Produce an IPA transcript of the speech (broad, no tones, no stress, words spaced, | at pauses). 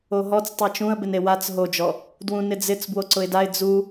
oɦɔt͡s tˤɛt͡ʃũə̯bɪn ewat͡s ɦod͡ʒɔ | dwũnɪd͡zɪt͡s bwoǀʊɪ̯daɪ̯ d͡zu